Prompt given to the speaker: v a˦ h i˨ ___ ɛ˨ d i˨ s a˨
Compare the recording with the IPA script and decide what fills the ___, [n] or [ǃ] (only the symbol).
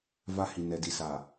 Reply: n